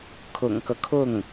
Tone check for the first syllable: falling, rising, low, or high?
low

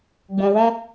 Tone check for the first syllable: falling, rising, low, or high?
low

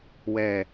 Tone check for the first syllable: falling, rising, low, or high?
low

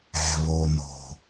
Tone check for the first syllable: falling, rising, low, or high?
low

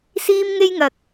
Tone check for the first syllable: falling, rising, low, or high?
high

